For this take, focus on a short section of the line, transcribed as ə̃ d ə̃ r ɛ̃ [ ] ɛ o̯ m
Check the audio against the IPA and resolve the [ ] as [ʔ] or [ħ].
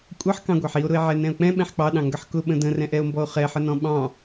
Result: ʔ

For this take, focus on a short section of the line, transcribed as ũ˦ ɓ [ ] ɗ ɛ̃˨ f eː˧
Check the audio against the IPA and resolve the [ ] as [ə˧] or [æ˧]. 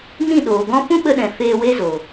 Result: ə˧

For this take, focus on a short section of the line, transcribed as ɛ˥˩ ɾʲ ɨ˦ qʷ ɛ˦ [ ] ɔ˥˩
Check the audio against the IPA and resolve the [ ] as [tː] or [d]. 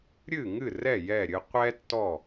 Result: tː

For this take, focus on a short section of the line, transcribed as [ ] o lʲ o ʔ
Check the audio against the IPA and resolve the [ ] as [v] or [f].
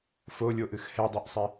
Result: f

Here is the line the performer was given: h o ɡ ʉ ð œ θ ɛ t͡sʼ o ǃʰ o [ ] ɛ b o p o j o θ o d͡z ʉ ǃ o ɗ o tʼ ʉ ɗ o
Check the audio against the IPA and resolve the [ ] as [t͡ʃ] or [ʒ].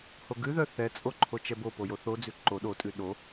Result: t͡ʃ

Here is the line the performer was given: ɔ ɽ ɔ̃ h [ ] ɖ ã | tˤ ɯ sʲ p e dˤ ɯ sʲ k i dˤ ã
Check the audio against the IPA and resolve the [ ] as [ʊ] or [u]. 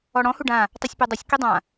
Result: u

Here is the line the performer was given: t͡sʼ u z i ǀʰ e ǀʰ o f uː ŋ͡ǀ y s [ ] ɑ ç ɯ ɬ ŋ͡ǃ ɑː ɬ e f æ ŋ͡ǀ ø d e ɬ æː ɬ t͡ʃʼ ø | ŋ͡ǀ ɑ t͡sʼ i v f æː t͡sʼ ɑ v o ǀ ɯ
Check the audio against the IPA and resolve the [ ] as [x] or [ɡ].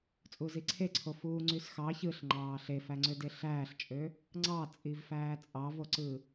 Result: x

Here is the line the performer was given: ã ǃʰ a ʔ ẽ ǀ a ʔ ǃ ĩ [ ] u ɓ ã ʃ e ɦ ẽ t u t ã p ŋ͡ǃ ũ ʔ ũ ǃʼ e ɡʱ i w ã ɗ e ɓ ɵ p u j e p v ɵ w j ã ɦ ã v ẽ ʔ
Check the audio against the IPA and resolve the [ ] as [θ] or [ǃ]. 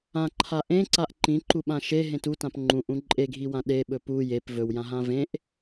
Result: ǃ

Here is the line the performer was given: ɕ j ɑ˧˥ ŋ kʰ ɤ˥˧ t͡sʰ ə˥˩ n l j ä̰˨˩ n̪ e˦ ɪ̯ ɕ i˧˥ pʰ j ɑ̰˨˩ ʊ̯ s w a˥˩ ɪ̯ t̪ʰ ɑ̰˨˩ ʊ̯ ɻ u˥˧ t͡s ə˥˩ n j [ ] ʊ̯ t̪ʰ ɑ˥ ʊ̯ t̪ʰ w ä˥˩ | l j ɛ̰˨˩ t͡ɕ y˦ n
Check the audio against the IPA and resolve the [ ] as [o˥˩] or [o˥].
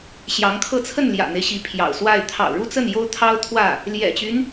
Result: o˥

